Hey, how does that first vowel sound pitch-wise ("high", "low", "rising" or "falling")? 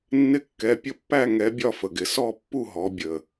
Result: rising